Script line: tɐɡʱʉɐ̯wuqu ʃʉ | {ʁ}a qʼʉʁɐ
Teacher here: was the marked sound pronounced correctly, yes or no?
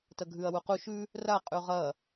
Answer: no